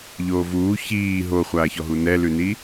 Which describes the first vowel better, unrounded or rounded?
rounded